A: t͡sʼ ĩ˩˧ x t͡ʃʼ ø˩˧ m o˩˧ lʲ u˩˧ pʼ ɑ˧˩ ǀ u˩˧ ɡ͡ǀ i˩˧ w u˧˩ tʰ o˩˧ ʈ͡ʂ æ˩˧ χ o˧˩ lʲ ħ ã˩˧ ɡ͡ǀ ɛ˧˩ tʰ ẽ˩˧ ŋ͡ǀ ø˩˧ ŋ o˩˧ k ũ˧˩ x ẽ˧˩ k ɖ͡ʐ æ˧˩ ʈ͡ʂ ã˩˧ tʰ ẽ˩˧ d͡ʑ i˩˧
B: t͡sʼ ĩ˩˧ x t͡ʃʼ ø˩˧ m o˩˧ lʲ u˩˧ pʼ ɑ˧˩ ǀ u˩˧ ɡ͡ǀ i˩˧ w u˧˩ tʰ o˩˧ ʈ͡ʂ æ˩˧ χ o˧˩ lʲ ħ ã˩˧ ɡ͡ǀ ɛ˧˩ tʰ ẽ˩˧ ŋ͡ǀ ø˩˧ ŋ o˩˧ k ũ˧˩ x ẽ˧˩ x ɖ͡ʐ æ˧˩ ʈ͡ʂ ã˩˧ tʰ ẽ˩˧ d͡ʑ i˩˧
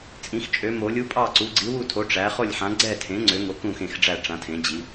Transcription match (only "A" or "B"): B